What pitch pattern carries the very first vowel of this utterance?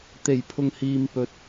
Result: low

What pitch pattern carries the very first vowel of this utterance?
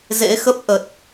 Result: rising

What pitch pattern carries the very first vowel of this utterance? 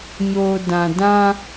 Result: low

